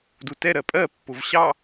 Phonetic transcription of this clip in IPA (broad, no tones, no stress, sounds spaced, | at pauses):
d u t ɛ ɾ ɜ pʼ ɜ pː ʊ v ɕ ɑ